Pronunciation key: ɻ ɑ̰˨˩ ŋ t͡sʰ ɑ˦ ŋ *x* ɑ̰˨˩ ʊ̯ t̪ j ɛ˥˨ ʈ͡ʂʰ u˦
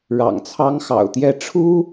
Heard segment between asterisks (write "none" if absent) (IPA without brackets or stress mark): x